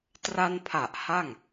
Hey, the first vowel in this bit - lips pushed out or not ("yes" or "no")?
no